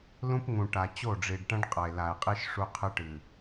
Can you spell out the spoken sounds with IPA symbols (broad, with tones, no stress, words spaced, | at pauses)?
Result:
lũ˦pŋũ˨ʈa˨ t͡ɕo˦˨ɖ͡ʐi˨ɖʈɐ̃˦ɖ qʼɐ˨e̯la˨e̯qʼi˦ʃ ʂu˦qʰɨ˦ʈɨ˨